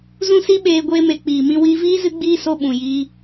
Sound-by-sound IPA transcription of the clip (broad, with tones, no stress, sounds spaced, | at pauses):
z ũ˦ s i˦ ɓ eː˧ ɡʷ eː˦ m e˧ k͡p iː˨ m ĩ˧ w iː˧ v iː˦ z ɨ˦ ɡ͡b iː˦ s o˧ ɓ ũ˨ j i˧